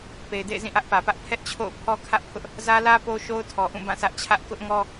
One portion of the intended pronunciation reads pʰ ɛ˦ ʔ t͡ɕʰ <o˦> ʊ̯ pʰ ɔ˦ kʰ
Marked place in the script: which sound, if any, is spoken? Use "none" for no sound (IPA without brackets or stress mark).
o̰˦˨